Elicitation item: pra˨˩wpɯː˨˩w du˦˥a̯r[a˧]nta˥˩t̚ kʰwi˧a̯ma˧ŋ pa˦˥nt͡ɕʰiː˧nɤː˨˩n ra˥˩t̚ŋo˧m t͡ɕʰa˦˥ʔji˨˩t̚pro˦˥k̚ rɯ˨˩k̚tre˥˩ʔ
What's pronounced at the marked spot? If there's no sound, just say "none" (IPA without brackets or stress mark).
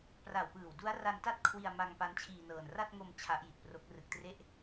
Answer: a˧